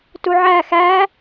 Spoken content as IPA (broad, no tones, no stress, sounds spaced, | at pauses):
t u ʕ æ x æ